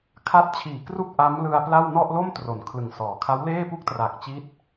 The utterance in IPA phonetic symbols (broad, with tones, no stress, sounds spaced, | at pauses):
kʰ a˦˥ t̚ t͡ɕʰ iː˨˩ k r u˥˩ k̚ ʔ a˦˥ m l ɯ˧ a̯ p l a˥˩ w n ɔ˥˩ ʔ l o˥˩ m t r o˩˦ n kʰ l ɯ˨˩ ŋ s ɔː˩˦ kʰ a˦˥ w l eː˥˩ p u˥˩ k̚ t r a˨˩ k̚ t͡ɕ i˦˥ t̚